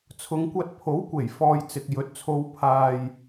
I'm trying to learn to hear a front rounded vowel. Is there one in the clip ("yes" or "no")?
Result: no